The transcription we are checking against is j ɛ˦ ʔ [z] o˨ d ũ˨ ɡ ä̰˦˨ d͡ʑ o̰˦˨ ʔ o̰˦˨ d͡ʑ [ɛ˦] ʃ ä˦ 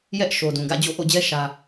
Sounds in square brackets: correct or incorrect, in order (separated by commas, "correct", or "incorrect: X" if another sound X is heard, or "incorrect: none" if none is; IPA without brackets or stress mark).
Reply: incorrect: ʃ, correct